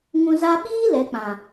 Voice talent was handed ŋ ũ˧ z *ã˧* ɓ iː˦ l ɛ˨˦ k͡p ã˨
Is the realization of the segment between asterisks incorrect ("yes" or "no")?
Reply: yes